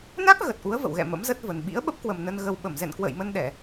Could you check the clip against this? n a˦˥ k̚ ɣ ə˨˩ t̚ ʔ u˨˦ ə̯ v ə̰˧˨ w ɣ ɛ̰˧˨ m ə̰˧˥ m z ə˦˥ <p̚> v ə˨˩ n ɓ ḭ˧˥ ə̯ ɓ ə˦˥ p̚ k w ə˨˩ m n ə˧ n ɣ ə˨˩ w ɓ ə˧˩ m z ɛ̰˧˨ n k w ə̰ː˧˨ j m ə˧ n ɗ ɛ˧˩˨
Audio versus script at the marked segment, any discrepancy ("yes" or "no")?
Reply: yes